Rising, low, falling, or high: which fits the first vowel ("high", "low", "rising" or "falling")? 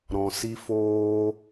low